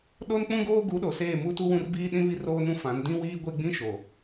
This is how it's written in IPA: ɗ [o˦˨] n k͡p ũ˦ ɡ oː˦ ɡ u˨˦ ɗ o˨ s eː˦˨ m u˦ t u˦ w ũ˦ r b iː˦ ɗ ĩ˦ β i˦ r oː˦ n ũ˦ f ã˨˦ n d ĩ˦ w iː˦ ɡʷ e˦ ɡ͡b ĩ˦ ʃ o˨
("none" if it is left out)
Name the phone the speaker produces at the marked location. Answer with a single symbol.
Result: o˦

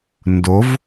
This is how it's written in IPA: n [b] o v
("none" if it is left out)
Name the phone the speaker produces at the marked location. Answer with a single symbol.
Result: d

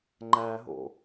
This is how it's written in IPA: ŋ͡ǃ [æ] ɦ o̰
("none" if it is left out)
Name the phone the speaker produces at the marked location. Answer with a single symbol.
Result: æ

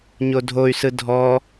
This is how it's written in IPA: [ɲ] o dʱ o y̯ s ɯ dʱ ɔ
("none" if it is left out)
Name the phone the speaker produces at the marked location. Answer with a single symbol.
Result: ɲ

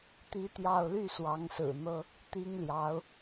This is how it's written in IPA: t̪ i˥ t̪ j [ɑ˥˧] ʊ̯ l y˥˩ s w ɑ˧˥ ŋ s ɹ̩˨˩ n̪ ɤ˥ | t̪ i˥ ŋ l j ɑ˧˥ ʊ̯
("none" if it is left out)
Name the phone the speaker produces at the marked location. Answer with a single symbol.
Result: ɑ˥˧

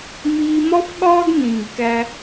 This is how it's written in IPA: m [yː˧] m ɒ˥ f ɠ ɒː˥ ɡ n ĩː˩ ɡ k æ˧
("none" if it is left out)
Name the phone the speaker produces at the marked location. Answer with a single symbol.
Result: iː˧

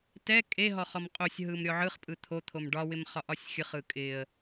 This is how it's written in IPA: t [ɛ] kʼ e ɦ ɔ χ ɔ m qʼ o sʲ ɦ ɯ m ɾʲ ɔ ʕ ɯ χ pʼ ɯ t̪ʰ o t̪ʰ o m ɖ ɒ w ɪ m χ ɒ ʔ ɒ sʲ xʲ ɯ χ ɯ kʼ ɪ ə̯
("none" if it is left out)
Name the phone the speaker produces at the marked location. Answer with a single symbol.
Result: ɛ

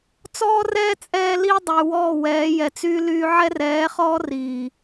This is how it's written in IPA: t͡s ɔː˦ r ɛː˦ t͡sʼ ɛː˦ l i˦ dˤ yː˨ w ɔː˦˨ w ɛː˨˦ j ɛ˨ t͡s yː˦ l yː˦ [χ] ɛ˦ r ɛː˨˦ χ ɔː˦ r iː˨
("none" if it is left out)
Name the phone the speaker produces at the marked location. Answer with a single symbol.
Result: ʕ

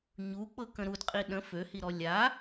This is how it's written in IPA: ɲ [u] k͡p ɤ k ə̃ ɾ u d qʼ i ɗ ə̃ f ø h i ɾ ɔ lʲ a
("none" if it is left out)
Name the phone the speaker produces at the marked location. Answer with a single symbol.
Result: u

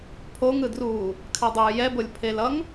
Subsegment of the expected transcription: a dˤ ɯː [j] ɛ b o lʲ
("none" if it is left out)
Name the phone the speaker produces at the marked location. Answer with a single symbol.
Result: j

